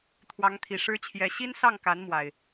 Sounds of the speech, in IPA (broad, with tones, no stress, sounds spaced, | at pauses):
t̪ʰ w ɑ˨˦ ŋ t̪ʰ i˨˩ ʂ ɻ̩˨˦ t͡ɕʰ j ɛ˨˦ ɕ i˦ n s ɑ˥˨ ŋ k a˨˦ n m w a˨˩ ɪ̯